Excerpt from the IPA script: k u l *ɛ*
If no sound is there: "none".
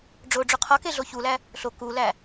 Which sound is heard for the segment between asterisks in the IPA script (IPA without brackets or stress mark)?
æ